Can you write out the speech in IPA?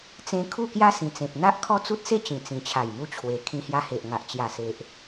t͡sẽ˧ kʰu˥˧kja˦ sĩ˨˩t͡sẽ˨p̚n̪a˦ʔ kʰɔ˦t͡su˦t̚se˥˧t͡ɕĩ˨˩ t͡sĩ˨˩t͡ɕʰa˨˩jmu˧ t͡ɕʰwe˨˩ kʰĩ˧hja˧he˨ʔŋa˨ʔ t͡ɕja˨˩se˨ʔ

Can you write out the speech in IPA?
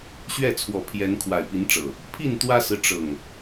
ɕɥɛ˥˨t͡sʰwɔ˨˦pʰjɛ˨˦n kʰwa˨˩ɪ̯pi˨˦nʈ͡ʂɤ˨˩ | pʰi˥˨nt̪wä˦sɹ̩˨ ʈ͡ʂɤ˨˩ŋ

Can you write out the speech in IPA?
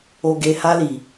o˧ɡe˧ ha˦li˨

